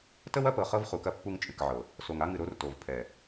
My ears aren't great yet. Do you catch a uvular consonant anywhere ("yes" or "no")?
yes